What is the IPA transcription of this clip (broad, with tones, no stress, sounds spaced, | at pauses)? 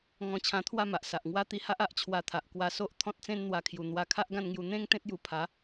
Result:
ŋ ɔ̃˧ t͡ɕʰ ã˧ t̪ʰ w a˥˧ m a˨ ʔ s a˨ ʔ ŋ w a˦ t̪ i˧ h a˦ ʔ a˨ ʔ t͡ɕʰ w a˧ t̪ʰ a˨ ʔ k w a˧ s o˦ ʔ t̪ʰ ɔ̃˦ t̚ t͡s ẽ˦ n n̪ w a˧ kʰ j u˨˩ n̪ w a˧ kʰ a˦ ʔ ɡ ã˥˧ n ŋ j u˧ n̪ ẽ˦ ŋ t̪ ẽ˦ t̚ j u˧ pʰ a˨˦